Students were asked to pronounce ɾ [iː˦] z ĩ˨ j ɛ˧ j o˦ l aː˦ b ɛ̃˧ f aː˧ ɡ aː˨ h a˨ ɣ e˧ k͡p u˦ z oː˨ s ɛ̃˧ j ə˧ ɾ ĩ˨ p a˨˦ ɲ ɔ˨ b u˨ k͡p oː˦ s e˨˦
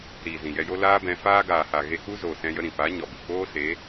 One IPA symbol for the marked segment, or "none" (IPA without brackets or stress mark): iː˨